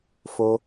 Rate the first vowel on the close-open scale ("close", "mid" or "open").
mid